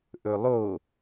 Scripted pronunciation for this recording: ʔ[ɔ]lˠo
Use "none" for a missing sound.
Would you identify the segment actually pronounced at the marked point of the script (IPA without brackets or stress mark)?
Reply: ɵ